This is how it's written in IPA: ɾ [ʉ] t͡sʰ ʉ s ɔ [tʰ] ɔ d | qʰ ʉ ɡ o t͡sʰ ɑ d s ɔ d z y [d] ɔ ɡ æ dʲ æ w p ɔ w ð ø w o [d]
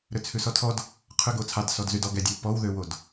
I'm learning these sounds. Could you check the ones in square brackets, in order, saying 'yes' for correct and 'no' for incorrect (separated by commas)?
no, yes, yes, yes